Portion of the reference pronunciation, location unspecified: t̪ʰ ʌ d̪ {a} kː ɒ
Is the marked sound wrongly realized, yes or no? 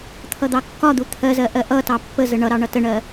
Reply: yes